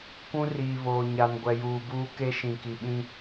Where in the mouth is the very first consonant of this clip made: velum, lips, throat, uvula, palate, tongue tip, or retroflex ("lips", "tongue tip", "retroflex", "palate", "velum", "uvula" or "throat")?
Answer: velum